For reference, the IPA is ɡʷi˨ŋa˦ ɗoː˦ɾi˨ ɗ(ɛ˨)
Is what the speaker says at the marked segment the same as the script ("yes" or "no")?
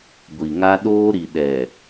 yes